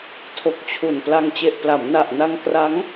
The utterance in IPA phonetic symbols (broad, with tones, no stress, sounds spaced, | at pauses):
tʰ o˨˩ k̚ t͡ɕʰ u˨˩ n p l a˧ ŋ t͡ɕ e˨˩ ʔ p l a˩˦ m n a˨˩ ʔ n a˧ ŋ k r a˦˥ ŋ